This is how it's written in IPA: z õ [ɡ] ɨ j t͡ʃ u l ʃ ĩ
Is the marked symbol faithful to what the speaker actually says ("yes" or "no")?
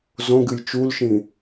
yes